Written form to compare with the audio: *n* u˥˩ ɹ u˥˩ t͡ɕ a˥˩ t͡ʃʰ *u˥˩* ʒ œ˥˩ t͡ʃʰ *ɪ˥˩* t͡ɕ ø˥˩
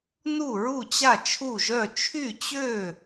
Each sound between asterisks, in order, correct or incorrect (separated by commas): correct, correct, incorrect